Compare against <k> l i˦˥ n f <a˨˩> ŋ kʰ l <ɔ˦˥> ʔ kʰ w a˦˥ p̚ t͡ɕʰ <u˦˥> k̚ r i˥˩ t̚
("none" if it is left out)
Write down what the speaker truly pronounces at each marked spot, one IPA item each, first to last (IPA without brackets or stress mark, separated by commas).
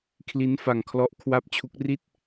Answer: kʰ, a˧, ɔ˦˥, u˦˥